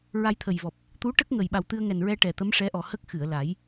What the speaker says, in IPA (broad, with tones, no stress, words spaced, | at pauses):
ɹa˧jt̪ʰə˨˩jvɔ˨˩p̚ | t̪u˧˥ ʈə˦˥k̚ŋə˨˩j ɓa˨˩wt̪ɨ˧ə̯ŋɛ˨˩nɹɛ˧ ʈɛ˨˩t̪ə˧˥mʂɛ˧˥ ʔɔ˨˩hə˦˥k̚ xɨ˨˩˨ə̯ la˨˩˦j